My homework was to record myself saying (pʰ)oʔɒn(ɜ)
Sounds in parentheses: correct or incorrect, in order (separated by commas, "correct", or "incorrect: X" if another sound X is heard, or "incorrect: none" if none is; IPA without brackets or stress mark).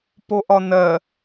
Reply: incorrect: p, correct